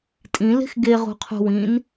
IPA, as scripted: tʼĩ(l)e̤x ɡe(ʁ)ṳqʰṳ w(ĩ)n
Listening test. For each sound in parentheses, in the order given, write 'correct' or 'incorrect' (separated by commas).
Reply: correct, correct, correct